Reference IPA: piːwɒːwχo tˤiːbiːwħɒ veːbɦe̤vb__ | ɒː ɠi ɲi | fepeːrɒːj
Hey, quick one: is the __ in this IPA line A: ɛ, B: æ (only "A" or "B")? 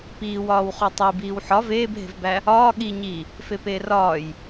B